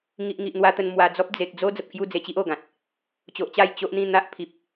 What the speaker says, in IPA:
ŋ i˨ ʔ ŋ i˨ ʔ n̪ w a˦ t̪ ə˧ n m w a˨˩ d͡z ɔ˦ p̚ d͡z e˨ k̚ d͡z o˦ d͡z ə˨ p̚ kʰ j u˥˧ d͡z e˧ t͡ɕ i˦ ʔ o˨˩ ɡ ã˨ t̚ | t͡ɕ o˨ ʔ t͡ɕ a˥˧ j t͡ɕ o˦ ʔ n̪ ĩ˥˧ n̪ a˦ ʔ pʰ i˨ p̚

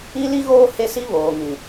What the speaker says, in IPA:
i˦ l i˦ ɣ oː˦ h e˦ s i˦ β oː˨ ŋ ĩ˨

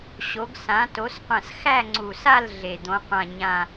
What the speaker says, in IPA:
ɕ o˨˥ ɡ s ã˨˥ t o˨˥ s qʷ ɐ̃˦˨ s x æ˦˨ ŋ͡ǀ u˨˩ s a˦˨ l ɮ e˨˩ d̪ õ˨˥ qʷ ã˦˨ ɲ ã˦˨

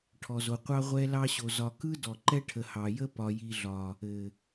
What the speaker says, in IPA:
ʈʰ ɔ˨ z o˨ qʷ ɑ˦ ʁʷ ɛ˦ l ɑ˦ ɕ o˨ z ɒ˨ k ɯ˦ d ɔ˨ ǃ ɛ˦ ʈʰ ə˨ h ɑ˨ j ə˦ p ɒ˨ j i˨ ɮ ɒ˨ | ɘ˨

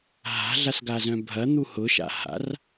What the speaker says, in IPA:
ɦ a̤ ɮ a s ɡ a z œ̃ bʱ ɐ n̪ u h ʊ ʃ a̰ h a̰ r

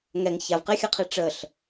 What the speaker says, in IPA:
ŋ ɛ ŋ ç a v q e xʲ ɜ qʰ e ʈ͡ʂ ə ɬ

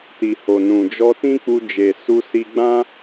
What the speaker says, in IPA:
t i˨ h o˨ n ũ˨ d͡ʒ ɔ˧ t ĩ˦ k͡p u˧ d͡ʒ e˨ s u˧ s i˧ ɡ͡b ã˦

